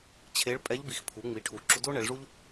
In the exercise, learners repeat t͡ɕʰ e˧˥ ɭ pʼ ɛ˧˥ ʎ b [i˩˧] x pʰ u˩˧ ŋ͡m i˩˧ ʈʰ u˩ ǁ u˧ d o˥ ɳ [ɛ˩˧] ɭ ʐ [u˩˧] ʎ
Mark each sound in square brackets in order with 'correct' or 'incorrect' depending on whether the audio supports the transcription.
correct, correct, incorrect

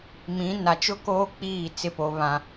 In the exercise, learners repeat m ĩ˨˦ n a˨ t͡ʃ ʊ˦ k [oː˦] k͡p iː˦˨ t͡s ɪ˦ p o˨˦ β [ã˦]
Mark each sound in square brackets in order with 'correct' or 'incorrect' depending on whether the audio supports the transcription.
correct, correct

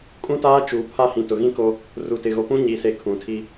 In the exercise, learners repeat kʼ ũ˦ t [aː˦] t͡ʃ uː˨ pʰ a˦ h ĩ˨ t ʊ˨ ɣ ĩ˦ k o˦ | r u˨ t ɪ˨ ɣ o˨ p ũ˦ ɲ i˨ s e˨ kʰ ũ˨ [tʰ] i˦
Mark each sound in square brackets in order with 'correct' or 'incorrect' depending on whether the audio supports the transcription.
correct, correct

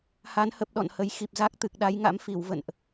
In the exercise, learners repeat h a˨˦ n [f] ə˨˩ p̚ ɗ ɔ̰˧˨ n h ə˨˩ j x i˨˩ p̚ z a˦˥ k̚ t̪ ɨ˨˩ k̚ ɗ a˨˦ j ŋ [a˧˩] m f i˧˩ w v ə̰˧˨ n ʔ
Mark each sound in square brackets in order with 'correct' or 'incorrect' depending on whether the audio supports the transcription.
incorrect, incorrect

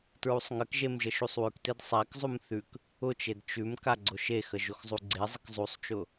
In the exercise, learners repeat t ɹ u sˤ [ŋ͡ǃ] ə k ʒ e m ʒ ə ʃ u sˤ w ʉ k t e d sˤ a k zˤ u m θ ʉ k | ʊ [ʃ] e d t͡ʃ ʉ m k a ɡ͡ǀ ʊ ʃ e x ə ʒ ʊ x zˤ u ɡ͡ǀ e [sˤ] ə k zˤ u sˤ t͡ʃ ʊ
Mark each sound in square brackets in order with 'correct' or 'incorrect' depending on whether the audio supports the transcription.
incorrect, incorrect, incorrect

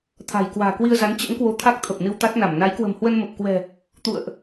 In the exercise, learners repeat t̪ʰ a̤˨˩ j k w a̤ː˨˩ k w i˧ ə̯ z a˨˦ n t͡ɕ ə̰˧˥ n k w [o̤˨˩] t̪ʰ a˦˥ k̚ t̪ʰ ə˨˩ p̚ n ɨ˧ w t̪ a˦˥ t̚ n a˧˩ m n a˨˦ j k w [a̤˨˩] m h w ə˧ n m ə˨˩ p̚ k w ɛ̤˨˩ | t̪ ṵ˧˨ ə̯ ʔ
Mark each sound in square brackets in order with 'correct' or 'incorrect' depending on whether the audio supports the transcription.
incorrect, incorrect

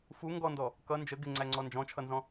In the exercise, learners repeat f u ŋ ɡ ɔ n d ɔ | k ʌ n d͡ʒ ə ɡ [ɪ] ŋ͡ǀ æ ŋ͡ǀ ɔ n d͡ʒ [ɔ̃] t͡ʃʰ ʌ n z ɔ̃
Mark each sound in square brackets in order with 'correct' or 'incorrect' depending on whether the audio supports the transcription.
correct, correct

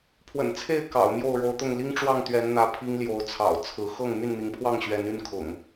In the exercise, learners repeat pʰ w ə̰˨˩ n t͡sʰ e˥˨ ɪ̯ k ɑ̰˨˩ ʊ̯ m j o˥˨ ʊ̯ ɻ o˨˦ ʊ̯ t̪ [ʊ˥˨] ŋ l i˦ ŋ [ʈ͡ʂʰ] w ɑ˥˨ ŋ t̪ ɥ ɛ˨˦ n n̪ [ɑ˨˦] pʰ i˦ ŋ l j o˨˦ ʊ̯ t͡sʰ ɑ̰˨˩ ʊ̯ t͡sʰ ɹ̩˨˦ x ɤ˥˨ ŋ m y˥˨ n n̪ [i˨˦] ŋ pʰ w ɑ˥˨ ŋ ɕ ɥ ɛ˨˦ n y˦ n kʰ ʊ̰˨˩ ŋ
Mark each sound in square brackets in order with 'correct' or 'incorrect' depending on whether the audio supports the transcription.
correct, incorrect, incorrect, correct

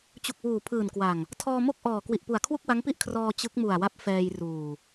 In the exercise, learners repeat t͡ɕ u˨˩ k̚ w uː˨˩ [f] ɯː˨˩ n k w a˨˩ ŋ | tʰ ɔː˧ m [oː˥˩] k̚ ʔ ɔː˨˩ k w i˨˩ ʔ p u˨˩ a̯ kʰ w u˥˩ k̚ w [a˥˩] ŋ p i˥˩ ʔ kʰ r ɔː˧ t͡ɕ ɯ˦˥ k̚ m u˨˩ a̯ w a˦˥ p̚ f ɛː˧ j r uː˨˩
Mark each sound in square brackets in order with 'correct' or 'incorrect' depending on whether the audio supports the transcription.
incorrect, incorrect, incorrect

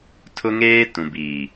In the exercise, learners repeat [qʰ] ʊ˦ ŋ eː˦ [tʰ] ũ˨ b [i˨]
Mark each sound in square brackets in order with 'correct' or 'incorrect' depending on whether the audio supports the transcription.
incorrect, incorrect, incorrect

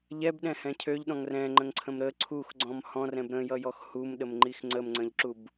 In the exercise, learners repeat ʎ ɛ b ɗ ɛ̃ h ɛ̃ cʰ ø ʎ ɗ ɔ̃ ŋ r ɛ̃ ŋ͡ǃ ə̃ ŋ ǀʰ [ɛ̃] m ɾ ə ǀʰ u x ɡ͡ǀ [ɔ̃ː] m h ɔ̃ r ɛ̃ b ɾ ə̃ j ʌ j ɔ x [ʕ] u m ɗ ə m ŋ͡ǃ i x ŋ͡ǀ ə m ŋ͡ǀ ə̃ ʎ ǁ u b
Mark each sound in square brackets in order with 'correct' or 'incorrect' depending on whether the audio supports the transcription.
incorrect, incorrect, incorrect

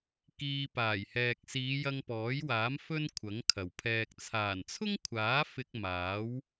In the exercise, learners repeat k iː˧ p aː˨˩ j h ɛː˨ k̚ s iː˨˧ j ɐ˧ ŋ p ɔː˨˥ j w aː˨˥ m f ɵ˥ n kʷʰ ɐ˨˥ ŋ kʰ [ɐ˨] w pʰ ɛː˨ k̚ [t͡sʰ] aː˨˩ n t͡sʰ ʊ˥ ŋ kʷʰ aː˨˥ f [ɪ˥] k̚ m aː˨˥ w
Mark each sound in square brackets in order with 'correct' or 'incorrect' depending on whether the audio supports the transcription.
incorrect, correct, incorrect

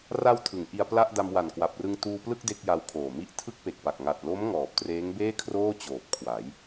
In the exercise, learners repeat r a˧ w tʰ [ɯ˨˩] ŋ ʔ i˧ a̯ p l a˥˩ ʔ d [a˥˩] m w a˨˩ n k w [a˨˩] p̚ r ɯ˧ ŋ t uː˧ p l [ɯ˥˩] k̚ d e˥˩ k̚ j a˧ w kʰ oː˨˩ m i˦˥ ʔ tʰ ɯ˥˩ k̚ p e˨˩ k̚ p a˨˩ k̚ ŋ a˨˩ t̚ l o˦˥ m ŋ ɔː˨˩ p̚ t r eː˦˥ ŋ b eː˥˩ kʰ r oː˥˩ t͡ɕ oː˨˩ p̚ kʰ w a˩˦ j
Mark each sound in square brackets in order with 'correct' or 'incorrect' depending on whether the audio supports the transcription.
incorrect, incorrect, correct, correct

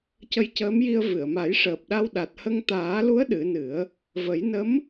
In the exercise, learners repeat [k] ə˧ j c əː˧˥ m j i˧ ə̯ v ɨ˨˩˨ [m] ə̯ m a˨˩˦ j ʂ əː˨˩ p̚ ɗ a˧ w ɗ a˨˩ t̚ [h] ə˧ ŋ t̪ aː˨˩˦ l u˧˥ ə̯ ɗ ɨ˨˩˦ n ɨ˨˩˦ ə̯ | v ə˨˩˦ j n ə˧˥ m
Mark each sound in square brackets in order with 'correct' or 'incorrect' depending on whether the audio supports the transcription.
incorrect, incorrect, correct

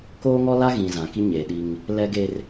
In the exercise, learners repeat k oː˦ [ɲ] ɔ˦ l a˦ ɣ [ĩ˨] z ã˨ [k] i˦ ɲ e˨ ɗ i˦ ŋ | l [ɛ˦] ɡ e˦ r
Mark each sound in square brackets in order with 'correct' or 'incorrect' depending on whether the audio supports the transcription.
incorrect, correct, correct, correct

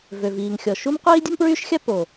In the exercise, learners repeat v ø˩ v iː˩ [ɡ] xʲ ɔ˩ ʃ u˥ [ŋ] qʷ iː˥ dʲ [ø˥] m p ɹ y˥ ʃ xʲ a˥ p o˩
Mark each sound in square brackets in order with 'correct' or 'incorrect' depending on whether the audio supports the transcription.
incorrect, incorrect, incorrect

